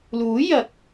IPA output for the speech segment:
l uː˨˥ j ɐ˨˥ k̚

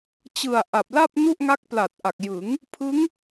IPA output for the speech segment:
t͡ɕ ɯ˨˩ a̯ ʔ a˨˩ p̚ l a˥˩ p̚ n u˥˩ ʔ ŋ a˦˥ k̚ p l a˨˩ t̚ ʔ a˨˩ k̚ j ɯ˩˦ ŋ | pʰ ɯ˦˥ ŋ

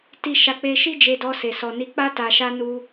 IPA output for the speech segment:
t i˦ ʃ a˦˨ k͡p e˧ ʃ i˦ d͡ʒ e˧ d ɔ˧ s e˨ s ɔ˨ n i˧ k͡p a˦ t a˧ ʃ a˦ n u˧

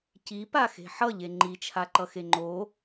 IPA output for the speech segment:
c i p a x e̤ ħ ʌ ʎ e ŋ͡ǃ i t͡ʃʰ a ǃ ʌ x e ŋ͡ǃ o

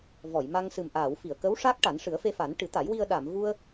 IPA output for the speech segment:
v ɔ˨˩˨ j m a˧ ŋ s ɨ˨˩ m ʔ aː˨˩˨ w f i˨˩˨ ə̯ k ə˧˥ w ʂ a˦˥ k̚ ʈ a˨˩˦ n ʂ ɨ˨˩˦ ə̯ f e˧ f a˨˩˦ n ʈ ɨ˨˩˦ t̪ a˨˩˦ j w i˧ ə̯ ɗ a˨˩˨ m v u˧ ə̯

